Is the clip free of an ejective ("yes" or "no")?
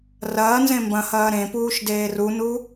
yes